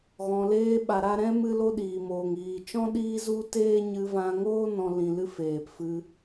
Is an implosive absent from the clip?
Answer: no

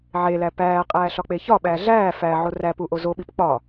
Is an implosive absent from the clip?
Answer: no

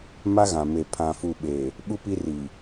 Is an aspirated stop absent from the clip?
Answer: no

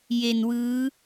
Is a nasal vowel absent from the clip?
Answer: yes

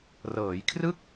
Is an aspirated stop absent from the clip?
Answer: no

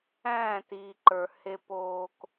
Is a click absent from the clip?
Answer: no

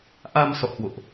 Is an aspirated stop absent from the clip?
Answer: yes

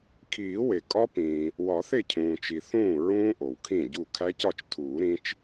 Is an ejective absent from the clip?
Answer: no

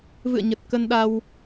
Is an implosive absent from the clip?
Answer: no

